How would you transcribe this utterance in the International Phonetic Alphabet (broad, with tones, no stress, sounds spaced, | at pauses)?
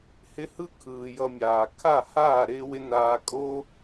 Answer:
h ɪ˦ h ɯ˦ kʰ ɯː˨ j ʌ˧ mʲ aː˨ kʰ a˦˨ h aː˦˨ ɾ ɪː˦ w ɪ˦ n aː˧ kʼ o˦